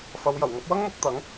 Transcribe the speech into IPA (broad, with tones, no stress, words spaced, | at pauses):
fɐ˨˧wjɐ˨˩wŋɐ˨˥p̚ wɐ˥ŋmʊ˨˥k̚t̪ɐ˨˥ŋ